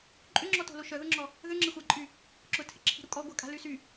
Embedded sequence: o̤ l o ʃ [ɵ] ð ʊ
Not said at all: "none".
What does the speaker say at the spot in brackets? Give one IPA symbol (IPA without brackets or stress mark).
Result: œ